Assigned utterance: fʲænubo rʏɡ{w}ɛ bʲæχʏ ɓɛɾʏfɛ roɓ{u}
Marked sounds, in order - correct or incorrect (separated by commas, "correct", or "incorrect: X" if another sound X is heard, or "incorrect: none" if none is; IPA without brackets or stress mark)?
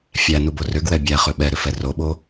correct, incorrect: o